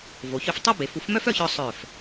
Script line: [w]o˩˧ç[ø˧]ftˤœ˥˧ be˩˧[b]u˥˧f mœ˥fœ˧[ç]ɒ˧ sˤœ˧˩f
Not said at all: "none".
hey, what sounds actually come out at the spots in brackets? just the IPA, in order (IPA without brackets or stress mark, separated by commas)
v, ø˧, f, ç